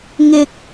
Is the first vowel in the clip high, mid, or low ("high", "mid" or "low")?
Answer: high